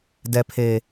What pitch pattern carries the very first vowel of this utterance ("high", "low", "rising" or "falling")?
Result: low